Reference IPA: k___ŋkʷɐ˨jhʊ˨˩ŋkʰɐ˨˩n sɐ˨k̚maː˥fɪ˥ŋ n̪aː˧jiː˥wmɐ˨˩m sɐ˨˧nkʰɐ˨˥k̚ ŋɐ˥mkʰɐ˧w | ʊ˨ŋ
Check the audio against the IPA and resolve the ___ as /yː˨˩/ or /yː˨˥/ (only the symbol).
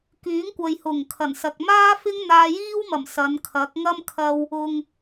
yː˨˥